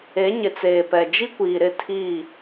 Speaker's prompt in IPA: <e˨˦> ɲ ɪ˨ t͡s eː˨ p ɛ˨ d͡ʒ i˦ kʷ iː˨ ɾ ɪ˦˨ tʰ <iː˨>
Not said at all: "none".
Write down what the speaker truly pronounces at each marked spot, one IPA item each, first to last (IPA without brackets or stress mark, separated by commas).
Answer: e˨˦, iː˦˨